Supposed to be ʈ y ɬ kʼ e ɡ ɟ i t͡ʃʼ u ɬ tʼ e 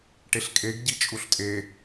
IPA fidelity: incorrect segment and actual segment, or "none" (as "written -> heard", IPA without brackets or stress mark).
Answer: y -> e